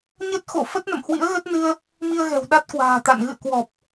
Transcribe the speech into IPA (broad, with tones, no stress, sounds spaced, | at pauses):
ɲ ə˦˥ t̚ x o̰˧˨ f ə˦˥ t̚ n ə̰˧˨ m h w ḭ˧˥ ə̯ ɣ ə˦˥ t̚ n ɨ˧ ə̯ | m i˧ ə̯ ɣ ɛ̤˨˩ w ɗ a˦˥ t̚ k w a̤ː˨˩ t̪ a̰˧˨ n ɣ ɨ̰˧˨ ə̯ k w ɔ˨˩ p̚